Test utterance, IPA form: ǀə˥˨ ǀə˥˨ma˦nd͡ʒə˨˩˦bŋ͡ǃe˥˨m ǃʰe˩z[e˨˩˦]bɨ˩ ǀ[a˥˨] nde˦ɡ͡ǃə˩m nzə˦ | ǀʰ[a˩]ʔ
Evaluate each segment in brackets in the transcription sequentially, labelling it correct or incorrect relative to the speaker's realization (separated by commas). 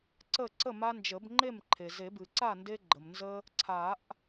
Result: correct, correct, incorrect